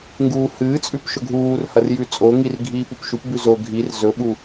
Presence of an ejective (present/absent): present